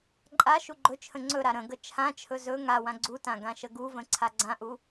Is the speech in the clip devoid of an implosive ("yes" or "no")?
yes